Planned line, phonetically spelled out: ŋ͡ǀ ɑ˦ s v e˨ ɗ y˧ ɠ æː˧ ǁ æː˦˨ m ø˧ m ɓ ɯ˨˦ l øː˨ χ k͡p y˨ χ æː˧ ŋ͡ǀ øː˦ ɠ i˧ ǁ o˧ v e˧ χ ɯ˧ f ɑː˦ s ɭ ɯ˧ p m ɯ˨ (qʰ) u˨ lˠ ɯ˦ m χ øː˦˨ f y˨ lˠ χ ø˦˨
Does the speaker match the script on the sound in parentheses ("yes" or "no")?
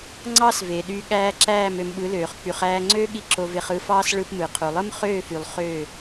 yes